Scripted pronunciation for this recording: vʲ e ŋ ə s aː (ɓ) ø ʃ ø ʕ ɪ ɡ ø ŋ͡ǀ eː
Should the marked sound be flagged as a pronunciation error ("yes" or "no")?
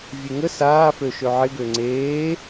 yes